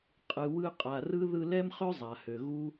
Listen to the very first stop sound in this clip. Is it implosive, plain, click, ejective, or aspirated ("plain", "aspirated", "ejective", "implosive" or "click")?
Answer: ejective